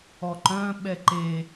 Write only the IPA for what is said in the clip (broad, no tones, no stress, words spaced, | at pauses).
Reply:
ɔǃœ̃ ɓɛǃe